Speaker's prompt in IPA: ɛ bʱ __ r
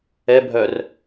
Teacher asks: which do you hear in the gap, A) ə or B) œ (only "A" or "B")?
B